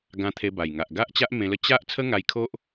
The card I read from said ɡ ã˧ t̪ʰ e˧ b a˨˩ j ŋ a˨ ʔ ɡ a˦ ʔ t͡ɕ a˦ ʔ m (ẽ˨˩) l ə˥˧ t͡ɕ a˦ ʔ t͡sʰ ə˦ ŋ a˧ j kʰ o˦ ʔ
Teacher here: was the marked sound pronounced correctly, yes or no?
no